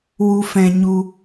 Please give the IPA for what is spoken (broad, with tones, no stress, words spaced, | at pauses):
wu˧fɛ̃˧ɲu˧